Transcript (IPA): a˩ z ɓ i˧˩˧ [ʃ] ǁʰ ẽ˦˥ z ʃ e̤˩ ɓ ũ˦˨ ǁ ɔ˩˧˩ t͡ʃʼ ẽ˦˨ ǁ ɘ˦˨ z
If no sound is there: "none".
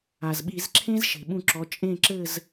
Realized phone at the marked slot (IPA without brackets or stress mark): z